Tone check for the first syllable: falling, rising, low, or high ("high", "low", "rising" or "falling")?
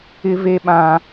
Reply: high